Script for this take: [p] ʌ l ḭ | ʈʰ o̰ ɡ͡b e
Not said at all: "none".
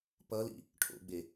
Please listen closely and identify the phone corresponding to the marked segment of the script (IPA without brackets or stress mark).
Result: p